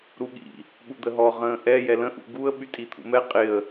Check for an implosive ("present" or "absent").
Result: present